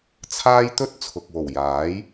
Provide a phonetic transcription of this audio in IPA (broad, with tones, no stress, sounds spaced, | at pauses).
t͡sʰ aː˥ j t̪ ɵ˥ t̚ t͡sʰ ʊ˨ k̚ w o˨˩ w j aː˨˥ j